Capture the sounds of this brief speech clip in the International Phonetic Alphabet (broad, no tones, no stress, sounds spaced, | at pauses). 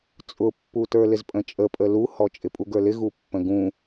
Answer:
t͡sʼ ʊ pː u t ə˞ l ɪ z pʼ ə̃ t͡ʃʼ ə pʼ ə l u h ɔ t͡ʃʼ ɪ pʼ u ɡ ə˞ l ɪ ɣ u pː ə̃ ɡ ũ